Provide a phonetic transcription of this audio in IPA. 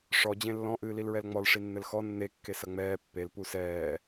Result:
ʂ ɔ d͡ʑ ẽ lː ɔ̃ ʔ ɨː l i l ɹ ɛ l ŋ͡m ɔ l ʂ i nː ɘ l x ɔ nː e kː e s ɐ ŋ͡m ɛː pː e l p u s ɛː

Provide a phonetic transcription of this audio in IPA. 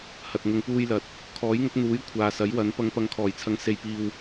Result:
h ɐ˨ t̚ ŋ ʊ˨ ŋ p uː˧ j l ɐ˨ t̚ | kʰ ɔː˨˥ j ŋ ʊ˨˥ k̚ n̪ uː˨˥ j kʷʰ aː˨ s ɐ˨˥ j w ɐ˨˥ n p ɐ˨˧ ŋ p ɐ˨˧ ŋ kʰ ɔː˨˩ j t͡sʰ ɐ˨˥ ŋ s e˨ j p iː˨ w

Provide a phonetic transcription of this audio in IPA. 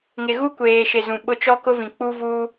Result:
ŋ ɪ˨ ɣ u˦ kʷ eː˨ ʃ ɪ˨ z ũ˨ ɓ ʊ˦ t͡ʃ ɔ˦ k ʊ˦ v ĩ˨ k͡p u˦ v uː˦

